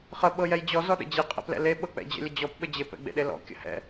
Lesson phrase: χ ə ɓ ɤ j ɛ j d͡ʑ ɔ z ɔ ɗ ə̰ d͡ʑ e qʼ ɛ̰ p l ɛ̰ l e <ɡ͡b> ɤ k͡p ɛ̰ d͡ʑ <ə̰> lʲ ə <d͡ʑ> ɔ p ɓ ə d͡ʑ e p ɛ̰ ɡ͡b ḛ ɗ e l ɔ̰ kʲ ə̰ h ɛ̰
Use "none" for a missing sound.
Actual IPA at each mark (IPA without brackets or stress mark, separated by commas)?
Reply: ɓ, ə̰, d͡ʑ